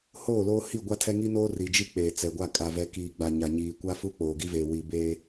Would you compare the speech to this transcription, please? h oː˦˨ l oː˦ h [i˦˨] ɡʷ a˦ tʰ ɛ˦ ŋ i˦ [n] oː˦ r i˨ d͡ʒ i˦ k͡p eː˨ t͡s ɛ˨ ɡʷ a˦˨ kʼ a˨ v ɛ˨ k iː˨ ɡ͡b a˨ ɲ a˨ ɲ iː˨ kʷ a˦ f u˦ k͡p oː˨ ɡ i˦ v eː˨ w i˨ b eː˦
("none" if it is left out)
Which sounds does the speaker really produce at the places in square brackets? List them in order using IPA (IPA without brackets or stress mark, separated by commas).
i˦˨, n